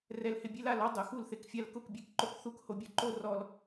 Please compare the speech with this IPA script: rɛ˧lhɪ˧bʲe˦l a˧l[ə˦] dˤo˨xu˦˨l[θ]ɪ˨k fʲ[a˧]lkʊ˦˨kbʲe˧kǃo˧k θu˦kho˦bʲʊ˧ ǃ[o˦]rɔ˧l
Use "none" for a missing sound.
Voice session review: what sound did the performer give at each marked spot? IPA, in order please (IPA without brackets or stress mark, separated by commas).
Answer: ɔ˦, θ, a˧, o˦